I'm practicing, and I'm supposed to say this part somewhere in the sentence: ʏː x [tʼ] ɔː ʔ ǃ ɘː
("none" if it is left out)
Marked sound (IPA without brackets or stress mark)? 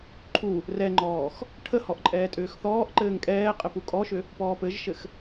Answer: θ